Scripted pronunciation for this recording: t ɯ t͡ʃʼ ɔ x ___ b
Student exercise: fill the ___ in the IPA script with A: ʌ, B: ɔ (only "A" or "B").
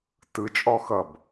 A